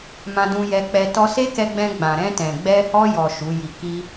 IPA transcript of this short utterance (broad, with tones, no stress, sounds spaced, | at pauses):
m ã˧ d ũ˧ j ɛ˧ k͡p ɛ˧ t ɔ˧ s e˦ k ɛ˧ ɡ͡b ɛ̃˧ ɡ͡b ã˨ ɾ ɛ̃˧ t ɛ̃˨ ɡ͡b ɛ˧ h ɔ˧ j ɔ˨ ʃ u˨˦ j i˧ k i˦